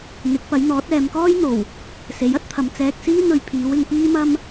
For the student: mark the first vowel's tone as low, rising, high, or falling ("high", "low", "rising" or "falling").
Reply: rising